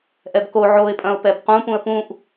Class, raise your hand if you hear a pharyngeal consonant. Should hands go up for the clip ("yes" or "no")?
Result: yes